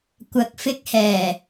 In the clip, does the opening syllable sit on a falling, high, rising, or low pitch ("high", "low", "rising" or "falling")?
low